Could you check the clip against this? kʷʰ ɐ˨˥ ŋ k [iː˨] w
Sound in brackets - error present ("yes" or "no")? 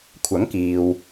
no